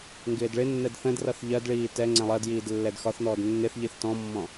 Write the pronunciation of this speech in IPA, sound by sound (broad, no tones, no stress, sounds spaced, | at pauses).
ŋ ɡ ɪː d ɭ ɪ nː ɛ d θ ə̃ d r ʌ θ ʎ ɜ d ɭ iː t ɛ ŋ͡ǀ ɛ̃ lˠ ɜ d j iː d lː ɛ d x ɒ θ n ɔː d nː ɪ θ ʎ i θ t ɔ̃ mː ɔ̃